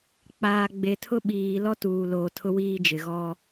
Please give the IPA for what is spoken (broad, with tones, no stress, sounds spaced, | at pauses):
k͡p aː˨ ɡ͡b e˨ tʰ ʊ˦ ɓ iː˨ l ɔ˦ t uː˨ l oː˨ tʰ ʊ˦ w iː˦ d͡ʒ ɪ˨ ɣ ɔ˦